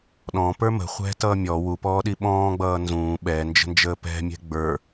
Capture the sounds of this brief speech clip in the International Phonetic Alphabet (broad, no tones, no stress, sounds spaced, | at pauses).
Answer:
ɗ ɔ̃ p ə˞ m ə̤ χʷ ɛ̤ t ʌː mʲ ɔ w u p ɔː ɗ i ɓ ɔ̃ː ɡ͡b ʌː n z ũː ɓ ɛ n d͡ʒ ə̤ n d͡ʒ əː p ɛ̤ mʲ ɛ̤ ɡ͡b ə˞